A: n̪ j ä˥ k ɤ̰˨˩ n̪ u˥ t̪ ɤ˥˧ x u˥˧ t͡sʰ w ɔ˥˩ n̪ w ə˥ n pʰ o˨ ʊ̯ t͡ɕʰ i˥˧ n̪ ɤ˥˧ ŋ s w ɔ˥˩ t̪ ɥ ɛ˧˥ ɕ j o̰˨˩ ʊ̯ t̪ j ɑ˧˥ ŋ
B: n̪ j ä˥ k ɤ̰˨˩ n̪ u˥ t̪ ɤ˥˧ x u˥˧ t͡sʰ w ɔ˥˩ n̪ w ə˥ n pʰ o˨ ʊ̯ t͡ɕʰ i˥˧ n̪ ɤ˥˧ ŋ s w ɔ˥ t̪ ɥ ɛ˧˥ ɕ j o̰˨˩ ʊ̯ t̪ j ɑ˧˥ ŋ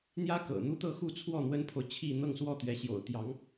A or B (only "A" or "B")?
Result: A